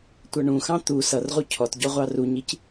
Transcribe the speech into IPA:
tʷ ʌ ɳ ũ x ɑ̃ t̪ u s ʌ r ʁ u cʰ ɔ t ɟ ɔ ʁʷ ɑ r u ɲ i c

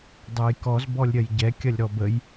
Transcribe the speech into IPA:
dˤ ɛ j k ɔ z b ɔ lʲ ɾʲ ɐ j ɟ ɛ kʲ ɐ lʲ ɾ ɔ b ə j

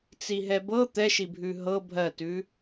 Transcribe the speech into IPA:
t͡s i ɦ ɛ b ɤ t̪ ɛ ʃ i bʱ ʉ ɦ ɤ bʱ ɜ t ʉ

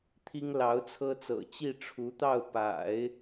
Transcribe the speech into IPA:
t̪ʰ i˥ ŋ l ɑ˧˥ ʊ̯ t͡sʰ ɤ˥ t͡s ɤ̰˨˩ t͡ɕ i˥˩ ʈ͡ʂʰ u˧˥ t̪ ɑ˥˩ ʊ̯ p a̰˨˩˦ ɪ̯

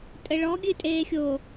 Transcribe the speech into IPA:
tʼ ɘ ɭ ɔ ɡʲ ɨ tʼ eː xʲ o

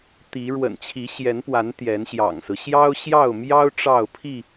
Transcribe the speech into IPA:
t̪ i˨˦ ɻ w ə̰˨˩ n t͡ɕʰ i˨˦ ɕ j ɛ˨˦ n p w a˨˦ n t̪ j ɛ˨˦ n ɕ j ɑ̰˨˩ ŋ s ɹ̩˦ ɕ j ɑ˦ ʊ̯ ɕ j ɑ˥˨ ʊ̯ m j ɑ˦ ʊ̯ ʈ͡ʂ ɑ˥˨ ʊ̯ pʰ i˥˨

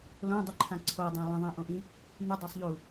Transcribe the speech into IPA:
l õ dˤ ʉ ǃʰ ã ǀʰ o dˤ õ lˠ ə̃ ðˤ ĩ ʔ õ ʔ ĩ | n̪ y dˤ ə˞ sˤ ʎ u

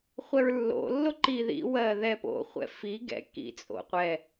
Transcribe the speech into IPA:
χʷ ɛ ɹ lː o̰ lː o ǃ i ð ḭ w ɜ ð ɛ p o̰ χʷ ɛ̰ f i ɡ ɛ̰ k ḭ t͡sʼ o̰ qʷ ɛ

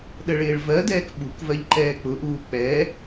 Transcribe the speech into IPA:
ɗ ə ɭ ɪː ɭ v ɜ d ɛː k ɓ u k v ɜ ʎ ǃ ɛː k͡p ʊ ʔ uː k͡p ɛ

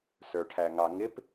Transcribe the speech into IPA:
s ə˞ ʈʰ æ ŋ ɑ ŋ ɪ p

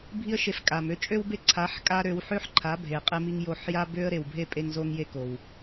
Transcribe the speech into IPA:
bʱ i˧ ə̯ ʃ e˨˦ f kʼ a˨ m ø˦ t͡ʃʼ ø˦ w b e˦ ǀʰ a˨˦ ħ kʼ a˧ ɾ ø˧ w ħ ø˦ ħ ǃʰ a˨˦ bʱ e˨ qʼ e˧ m i˧ ŋ j o˧ ħ j a˦ b ø˦ ə̯ ɾ e˨ w bʱ e˦ pʼ e˧ ŋ z o˧ ŋ j e˧ k o˨ w

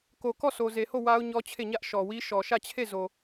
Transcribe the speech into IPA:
k o˨ k ɔ˦˨ sʰ o˨ z e˨ h o˦˨ w a˦ ʊ̯ ɲ ɔ˦ t͡ɕʰ e˦˨ ɲ ä˦ ʔ ʃ ɔ˨ w i˦ ʃ ɔ˨ ʃ ä˦˨ t͡ɕʰ e˦˨ z o˨

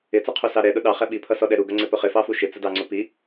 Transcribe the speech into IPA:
ɪ t͡s ʌ qʰ u s ɑ ɾ ɛ ɗ ʊ ɗ ɑ χ ɛ ɓ i pʰ ʌ s ɔ ɗ ɛ ɾ u ɡ ʌ ŋ͡ǀ ɪ p ʊ χ ɪ f ɑ f u ʃ ɪ t͡s ə d ɑ ŋ͡ǀ ʊ p i

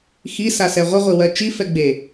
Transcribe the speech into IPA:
x i s a s ɛ ʁʷ ə ʁʷ i w ɜ t͡ʃ i f ɛ ɡ͡b e

